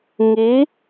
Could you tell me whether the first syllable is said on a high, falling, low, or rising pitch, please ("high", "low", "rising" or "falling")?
rising